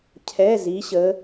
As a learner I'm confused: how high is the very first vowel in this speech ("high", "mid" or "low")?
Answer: mid